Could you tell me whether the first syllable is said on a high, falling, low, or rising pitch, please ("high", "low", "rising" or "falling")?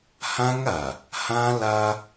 high